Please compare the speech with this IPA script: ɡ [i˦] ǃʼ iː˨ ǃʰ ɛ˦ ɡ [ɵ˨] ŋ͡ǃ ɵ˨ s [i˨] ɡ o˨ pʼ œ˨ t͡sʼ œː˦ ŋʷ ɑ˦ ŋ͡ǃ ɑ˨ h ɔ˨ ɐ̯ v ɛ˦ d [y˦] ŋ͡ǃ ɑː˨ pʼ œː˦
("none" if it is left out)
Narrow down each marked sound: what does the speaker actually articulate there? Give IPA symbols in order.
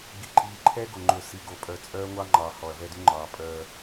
i˨, o˨, i˨, y˦

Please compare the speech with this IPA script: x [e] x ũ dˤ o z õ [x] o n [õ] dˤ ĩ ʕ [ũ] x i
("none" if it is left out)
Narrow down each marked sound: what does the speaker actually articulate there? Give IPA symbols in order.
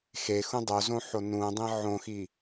e, ħ, ũ, õ

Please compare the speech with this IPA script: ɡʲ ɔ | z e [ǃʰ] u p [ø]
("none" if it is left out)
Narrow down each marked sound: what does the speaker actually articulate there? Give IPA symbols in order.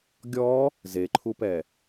ǃʰ, ɛ

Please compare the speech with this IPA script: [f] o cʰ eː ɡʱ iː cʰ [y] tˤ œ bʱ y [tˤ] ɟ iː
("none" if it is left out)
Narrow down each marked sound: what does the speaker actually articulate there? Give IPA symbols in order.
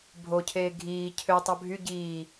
bʱ, ø, none

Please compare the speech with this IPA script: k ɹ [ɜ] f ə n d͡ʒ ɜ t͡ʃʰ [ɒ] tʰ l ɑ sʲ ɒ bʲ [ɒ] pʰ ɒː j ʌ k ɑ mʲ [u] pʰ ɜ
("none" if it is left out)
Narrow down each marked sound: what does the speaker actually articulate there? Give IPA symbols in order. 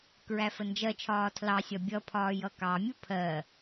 æ, ɒː, ʌ, u

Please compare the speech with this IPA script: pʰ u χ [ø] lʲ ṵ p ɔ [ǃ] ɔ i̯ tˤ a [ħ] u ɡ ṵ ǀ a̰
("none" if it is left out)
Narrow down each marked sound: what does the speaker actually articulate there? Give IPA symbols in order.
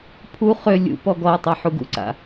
ø, ɡ, ħ

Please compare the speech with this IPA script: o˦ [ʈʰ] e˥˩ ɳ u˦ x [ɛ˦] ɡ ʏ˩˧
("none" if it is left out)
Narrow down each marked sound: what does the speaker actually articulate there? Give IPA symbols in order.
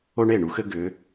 ɳ, ɘ˦

